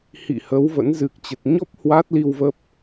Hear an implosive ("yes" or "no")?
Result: no